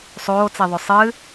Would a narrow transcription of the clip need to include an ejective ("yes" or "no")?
no